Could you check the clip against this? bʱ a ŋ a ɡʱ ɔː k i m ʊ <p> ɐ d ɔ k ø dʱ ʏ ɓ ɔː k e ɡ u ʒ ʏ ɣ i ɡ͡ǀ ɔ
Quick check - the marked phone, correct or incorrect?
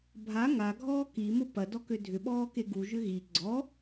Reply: correct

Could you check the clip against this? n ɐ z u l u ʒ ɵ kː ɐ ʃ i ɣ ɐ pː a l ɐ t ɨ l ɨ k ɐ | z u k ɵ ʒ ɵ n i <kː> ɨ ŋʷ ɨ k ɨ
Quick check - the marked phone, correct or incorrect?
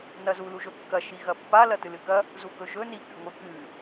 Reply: incorrect: k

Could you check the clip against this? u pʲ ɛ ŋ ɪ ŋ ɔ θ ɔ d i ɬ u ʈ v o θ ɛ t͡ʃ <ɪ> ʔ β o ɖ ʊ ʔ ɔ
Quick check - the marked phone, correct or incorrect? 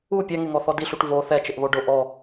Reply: correct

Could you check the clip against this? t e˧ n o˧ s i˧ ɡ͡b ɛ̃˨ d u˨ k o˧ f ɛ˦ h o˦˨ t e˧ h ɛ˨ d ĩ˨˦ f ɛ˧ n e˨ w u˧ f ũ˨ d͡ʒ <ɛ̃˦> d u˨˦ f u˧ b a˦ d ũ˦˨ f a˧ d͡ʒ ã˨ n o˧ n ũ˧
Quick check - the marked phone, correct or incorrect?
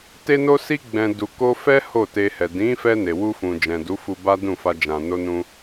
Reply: incorrect: ɛ̃˨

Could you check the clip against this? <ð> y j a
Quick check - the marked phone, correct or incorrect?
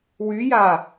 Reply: incorrect: w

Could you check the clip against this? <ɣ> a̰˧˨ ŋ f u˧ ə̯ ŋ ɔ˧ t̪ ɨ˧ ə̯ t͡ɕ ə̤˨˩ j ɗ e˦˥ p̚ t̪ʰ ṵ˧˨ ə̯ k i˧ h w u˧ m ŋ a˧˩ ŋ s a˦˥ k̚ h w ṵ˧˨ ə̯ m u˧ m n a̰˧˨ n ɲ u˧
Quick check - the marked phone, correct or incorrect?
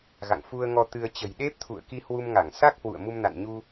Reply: correct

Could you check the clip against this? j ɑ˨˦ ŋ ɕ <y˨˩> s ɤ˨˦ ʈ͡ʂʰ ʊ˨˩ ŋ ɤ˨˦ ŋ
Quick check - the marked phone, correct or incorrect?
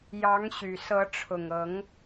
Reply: correct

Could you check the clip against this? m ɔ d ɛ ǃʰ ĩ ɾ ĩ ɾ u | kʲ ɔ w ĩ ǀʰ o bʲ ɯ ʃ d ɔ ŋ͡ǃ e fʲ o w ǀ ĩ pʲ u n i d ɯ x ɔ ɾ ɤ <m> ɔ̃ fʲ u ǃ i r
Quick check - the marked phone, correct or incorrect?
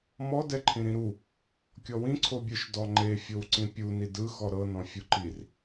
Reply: incorrect: n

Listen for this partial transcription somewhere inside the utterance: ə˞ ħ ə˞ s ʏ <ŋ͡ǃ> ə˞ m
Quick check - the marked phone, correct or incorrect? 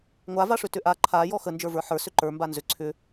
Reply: incorrect: ǃ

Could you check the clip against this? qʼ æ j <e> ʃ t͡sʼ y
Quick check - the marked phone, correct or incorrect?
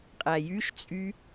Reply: incorrect: y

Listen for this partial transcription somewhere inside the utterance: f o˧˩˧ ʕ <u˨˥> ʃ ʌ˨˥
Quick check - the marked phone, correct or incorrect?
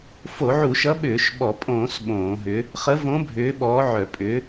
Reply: incorrect: u˧˩˧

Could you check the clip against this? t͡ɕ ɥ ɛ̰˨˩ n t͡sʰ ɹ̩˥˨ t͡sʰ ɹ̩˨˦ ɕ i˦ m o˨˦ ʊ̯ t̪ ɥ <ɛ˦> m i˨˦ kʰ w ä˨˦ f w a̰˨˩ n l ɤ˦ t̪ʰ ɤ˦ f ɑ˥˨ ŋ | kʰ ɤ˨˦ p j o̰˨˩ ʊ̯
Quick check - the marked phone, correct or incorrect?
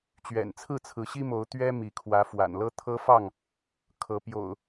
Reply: correct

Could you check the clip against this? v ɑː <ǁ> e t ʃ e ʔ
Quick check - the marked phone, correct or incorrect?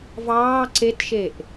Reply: incorrect: ǀ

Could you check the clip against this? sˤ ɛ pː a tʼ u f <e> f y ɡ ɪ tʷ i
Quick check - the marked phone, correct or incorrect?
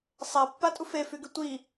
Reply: correct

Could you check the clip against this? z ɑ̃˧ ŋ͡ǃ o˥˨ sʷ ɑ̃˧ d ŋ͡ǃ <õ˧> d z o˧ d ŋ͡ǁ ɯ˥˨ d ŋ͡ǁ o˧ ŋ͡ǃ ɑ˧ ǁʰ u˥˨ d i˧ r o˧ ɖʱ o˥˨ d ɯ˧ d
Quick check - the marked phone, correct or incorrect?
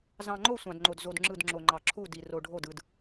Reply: incorrect: o˧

